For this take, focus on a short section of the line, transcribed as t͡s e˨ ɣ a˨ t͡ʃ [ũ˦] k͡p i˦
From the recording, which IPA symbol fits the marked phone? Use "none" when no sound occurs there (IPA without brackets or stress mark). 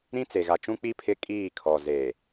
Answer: ũ˦